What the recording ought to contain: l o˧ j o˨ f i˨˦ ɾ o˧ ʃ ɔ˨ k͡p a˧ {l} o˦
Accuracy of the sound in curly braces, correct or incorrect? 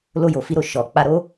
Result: incorrect